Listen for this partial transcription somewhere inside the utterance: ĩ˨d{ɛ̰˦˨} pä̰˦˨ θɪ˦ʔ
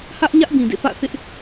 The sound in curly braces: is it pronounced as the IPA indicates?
no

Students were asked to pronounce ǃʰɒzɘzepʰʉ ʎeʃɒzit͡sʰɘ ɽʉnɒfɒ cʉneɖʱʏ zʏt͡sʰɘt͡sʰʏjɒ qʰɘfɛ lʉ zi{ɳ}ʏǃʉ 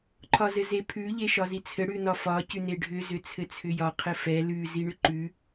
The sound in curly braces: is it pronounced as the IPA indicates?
yes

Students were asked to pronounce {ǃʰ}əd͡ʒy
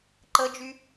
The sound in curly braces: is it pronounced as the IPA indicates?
no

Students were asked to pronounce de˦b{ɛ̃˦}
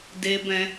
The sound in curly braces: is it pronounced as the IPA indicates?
yes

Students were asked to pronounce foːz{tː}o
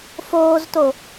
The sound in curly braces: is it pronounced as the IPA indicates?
no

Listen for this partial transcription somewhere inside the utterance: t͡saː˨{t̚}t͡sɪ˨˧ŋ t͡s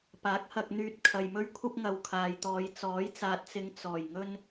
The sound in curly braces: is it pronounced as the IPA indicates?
yes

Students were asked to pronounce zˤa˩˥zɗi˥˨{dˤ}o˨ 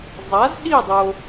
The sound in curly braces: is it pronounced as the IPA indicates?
yes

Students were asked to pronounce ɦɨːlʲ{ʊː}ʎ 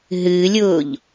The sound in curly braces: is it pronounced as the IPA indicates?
yes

